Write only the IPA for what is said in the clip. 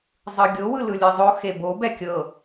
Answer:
zˤ ɯ ɡʲ o w ɯ l ɯ lʲ ɯ zˤ o x e b o b ɛ kʲ ɤ

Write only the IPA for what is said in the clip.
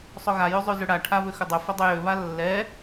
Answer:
sˤ ɵ ɣ a j ʉ zˤ ʉ z ʏ ɽ a ʈʰ a β ʏ x ʏ dˤ ɵ f ɵ dˤ ɵ j ø β a lː ɛ

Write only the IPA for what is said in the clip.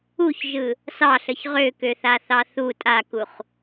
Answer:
u ç ʒ ɯ | s ɑ ɬ ə ç ʁ ø k ø θ a θ ɑ θ u tʼ a k u χ

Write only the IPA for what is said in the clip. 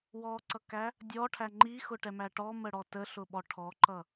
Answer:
w ɔ ǀ ʌ k æ | dʲ ɔ ʈʰ æ ŋ͡ǃ i x ʊ ʈ ɛ m æ ʈ ɔ m ə ɽ ɔ t ə ɬ ʊ ɓ ɔ ʈʰ ɔ ǃ ʌ

